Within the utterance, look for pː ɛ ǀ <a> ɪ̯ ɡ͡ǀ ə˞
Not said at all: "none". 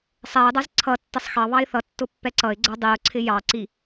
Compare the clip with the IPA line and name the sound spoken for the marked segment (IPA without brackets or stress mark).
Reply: ʌ